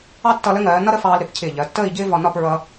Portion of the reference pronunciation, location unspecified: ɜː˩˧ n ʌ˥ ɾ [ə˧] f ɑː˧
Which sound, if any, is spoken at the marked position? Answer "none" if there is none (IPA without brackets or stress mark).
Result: ə˥